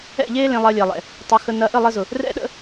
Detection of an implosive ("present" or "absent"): present